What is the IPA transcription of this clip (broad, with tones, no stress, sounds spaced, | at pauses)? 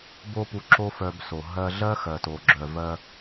b o˥ p u˧ ǁ o˥ f œ˧ b s o˩ ɦ ɜ˧ ɮ ɜ˥ x ɜ˩ t o˩ ɡ͡ǁ œ˩ v ɜ˧